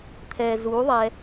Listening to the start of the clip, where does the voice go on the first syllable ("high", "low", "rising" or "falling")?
low